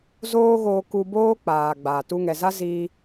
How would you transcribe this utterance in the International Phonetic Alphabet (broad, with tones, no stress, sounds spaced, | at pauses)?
z oː˦ ɣ oː˧ k u˧ b oː˦ k͡p aː˨ ɡ͡b a˨ t u˧ ŋ ɛ˨ z a˦ z iː˧